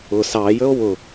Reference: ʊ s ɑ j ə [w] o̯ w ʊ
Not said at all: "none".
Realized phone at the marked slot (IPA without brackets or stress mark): none